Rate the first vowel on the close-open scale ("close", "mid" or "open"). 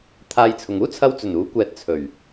open